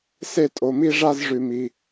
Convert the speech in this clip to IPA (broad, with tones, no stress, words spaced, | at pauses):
se˥˩tʼo˩˧˩mi˥˧ʐa˥˧z ʐʉ˧˩˧mi˩˧˩